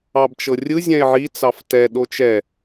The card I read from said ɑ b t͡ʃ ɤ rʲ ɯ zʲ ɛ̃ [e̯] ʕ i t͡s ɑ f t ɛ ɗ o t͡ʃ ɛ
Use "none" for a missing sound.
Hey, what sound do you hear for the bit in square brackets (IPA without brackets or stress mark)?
e̯